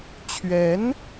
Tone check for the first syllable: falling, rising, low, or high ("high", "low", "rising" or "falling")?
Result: rising